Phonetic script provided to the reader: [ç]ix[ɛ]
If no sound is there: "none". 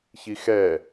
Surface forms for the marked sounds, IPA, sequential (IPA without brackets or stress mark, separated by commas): ç, ɛ